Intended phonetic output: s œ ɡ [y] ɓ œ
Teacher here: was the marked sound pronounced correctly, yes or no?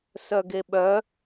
no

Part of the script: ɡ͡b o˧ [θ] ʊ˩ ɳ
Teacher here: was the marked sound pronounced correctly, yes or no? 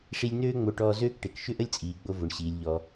no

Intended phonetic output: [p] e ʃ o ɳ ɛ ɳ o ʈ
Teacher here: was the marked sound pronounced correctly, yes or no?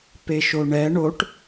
yes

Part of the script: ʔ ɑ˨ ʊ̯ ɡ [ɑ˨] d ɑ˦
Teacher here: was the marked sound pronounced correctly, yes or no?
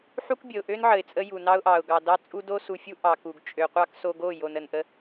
yes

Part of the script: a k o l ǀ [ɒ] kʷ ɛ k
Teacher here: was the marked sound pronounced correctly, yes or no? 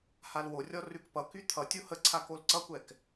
no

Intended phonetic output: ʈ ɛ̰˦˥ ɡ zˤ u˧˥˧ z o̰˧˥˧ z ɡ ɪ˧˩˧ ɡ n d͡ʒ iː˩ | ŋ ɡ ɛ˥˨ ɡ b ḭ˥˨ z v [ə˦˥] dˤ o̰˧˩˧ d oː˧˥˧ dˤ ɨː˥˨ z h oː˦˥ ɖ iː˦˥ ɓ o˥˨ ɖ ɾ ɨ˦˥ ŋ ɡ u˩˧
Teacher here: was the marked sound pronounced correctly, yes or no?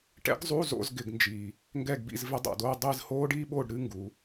no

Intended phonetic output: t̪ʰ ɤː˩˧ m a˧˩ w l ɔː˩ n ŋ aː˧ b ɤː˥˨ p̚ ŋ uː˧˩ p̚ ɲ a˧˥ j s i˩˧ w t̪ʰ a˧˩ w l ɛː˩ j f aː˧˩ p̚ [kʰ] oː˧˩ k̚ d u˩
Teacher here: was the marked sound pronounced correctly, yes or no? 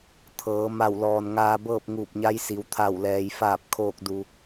yes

